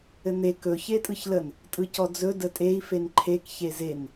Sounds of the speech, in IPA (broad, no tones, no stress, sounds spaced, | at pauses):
ɘ n̪ e k ɵ ç e tʼ ɯ ç l ə n | tʼ ɯ c ɔ d͡z ɵ d ə tʼ e i̯ f e n ǃʰ e k ç e z e n